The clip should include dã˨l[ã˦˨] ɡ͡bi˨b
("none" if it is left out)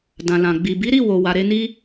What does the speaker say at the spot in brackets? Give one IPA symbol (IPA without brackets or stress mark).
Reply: ã˨